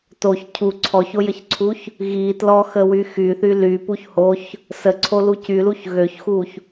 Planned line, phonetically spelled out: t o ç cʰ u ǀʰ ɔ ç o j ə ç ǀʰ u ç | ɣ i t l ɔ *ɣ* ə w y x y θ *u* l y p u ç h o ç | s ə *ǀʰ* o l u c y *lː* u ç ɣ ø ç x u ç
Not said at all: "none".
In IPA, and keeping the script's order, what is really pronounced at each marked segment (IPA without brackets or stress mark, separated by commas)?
x, y, ǀʰ, l